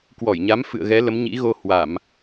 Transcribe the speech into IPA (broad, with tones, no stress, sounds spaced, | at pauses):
k w ɔ˧˩ j ɲ a˨˦ m f ɨ̰˧˨ ə̯ ɣ ɛ˨˦ l ə˨˦ m ɲ ḭ˧˥ ɣ o˧ h w a˧˩˨ m